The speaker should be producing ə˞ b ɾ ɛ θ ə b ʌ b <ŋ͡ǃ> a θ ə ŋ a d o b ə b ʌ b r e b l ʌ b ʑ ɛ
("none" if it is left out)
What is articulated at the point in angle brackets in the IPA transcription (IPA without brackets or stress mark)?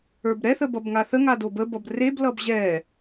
ŋ